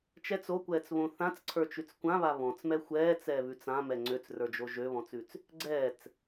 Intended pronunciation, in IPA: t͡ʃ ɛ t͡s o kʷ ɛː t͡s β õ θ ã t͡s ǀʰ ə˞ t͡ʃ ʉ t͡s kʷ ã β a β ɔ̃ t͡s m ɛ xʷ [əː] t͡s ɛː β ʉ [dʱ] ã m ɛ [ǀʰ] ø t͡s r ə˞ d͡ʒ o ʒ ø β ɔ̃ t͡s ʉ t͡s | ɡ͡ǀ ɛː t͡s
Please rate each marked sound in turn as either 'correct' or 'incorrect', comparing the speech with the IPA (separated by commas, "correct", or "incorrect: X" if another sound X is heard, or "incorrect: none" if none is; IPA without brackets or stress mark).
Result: incorrect: ɛː, incorrect: t͡s, incorrect: ŋ͡ǀ